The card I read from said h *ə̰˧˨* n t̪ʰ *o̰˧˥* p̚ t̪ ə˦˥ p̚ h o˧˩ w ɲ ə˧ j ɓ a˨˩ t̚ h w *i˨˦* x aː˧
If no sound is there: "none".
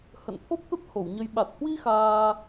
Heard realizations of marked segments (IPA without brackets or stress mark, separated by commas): ə̰˧˨, o˦˥, i˧